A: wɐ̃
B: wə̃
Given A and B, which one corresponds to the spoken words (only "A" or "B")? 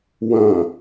A